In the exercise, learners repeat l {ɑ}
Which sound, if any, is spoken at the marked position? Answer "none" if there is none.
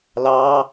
ɑ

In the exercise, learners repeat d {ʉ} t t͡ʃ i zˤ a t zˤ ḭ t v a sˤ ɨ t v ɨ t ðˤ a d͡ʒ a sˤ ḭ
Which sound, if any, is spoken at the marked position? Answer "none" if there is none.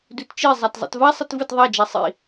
ʉ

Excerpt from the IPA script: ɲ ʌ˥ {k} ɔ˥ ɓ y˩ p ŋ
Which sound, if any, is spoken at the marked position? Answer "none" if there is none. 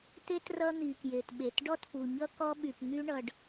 k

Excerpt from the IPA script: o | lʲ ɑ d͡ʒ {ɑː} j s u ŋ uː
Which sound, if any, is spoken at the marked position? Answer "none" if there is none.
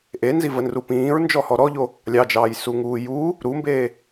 ɑː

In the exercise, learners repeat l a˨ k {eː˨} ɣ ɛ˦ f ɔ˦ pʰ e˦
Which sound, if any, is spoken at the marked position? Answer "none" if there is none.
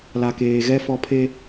eː˨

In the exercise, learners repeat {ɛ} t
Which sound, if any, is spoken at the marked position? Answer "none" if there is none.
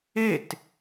e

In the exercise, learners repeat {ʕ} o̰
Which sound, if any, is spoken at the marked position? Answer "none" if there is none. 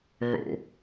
ʕ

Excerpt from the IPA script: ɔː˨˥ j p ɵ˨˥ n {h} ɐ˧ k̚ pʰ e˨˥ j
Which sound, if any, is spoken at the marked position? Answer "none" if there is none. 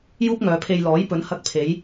h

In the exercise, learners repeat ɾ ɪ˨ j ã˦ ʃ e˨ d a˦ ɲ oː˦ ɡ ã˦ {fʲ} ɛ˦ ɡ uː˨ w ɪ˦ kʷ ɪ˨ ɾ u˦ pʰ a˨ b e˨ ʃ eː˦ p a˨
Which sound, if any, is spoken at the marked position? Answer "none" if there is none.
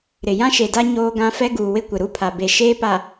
f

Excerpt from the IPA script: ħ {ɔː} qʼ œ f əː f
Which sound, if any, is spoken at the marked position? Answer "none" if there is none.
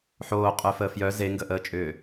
oː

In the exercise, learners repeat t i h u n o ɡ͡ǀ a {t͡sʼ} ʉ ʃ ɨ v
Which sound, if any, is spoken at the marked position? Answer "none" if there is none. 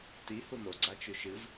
t͡ʃ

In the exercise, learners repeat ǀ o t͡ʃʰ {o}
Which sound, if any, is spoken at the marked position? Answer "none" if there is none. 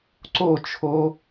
o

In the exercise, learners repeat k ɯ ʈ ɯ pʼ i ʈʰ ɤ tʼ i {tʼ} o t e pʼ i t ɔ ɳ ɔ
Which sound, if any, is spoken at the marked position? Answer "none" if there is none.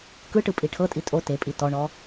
tʼ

